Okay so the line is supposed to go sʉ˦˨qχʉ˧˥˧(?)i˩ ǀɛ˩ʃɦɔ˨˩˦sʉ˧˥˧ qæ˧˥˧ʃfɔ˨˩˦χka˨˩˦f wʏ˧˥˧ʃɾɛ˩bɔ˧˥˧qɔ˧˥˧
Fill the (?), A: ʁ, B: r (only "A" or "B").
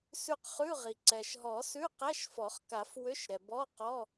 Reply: A